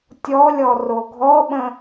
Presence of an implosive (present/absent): present